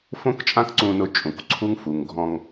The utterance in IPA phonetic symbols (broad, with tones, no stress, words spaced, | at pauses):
fõ˥kt͡ʃʼã˥kǀũ˧nʊ˧ t͡ʃʼũ˩kǀʰu˥ŋfu˩ŋ ɡʱɔ̃˧ŋ